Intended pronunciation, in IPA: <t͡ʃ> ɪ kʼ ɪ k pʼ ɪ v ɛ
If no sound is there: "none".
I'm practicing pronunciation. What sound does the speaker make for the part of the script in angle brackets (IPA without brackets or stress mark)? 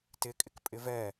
t